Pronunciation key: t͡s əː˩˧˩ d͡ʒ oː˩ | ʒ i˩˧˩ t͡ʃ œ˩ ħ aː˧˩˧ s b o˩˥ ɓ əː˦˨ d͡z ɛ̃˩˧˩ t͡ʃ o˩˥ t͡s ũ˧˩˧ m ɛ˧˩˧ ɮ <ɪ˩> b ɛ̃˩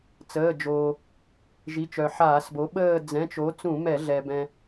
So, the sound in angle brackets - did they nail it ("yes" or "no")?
no